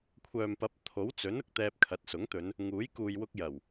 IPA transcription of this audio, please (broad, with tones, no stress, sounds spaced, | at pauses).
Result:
kʷʰ œː˨ m p ɐ˨˥ p̚ t̪ʰ o˨˥ w t͡s ɵ˨˥ n ʊ˧ k̚ t̪ ɛː˧ p̚ kʰ ɐ˨˥ t̚ s ʊ˨˥ ŋ t̪ ɵ˨˧ n | ŋ uː˨˥ j k uː˨ j w ʊ˧ k̚ j ɐ˨˩ w